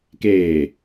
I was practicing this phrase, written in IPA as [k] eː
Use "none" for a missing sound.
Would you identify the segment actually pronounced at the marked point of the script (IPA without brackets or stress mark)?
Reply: k